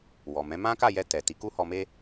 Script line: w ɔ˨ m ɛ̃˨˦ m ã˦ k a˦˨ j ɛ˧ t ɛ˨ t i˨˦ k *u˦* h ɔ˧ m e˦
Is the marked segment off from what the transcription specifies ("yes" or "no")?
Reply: no